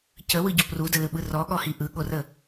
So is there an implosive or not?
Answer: yes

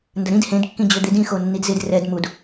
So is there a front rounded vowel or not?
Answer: yes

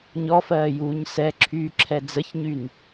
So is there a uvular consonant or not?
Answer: no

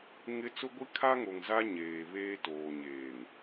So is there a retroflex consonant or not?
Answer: no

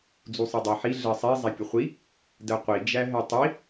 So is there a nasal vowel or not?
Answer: no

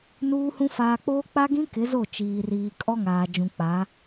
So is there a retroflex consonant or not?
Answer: no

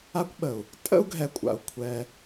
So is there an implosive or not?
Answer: yes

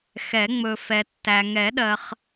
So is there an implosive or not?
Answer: yes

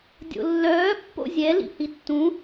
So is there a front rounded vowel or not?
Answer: yes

